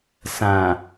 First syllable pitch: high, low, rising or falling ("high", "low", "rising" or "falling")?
low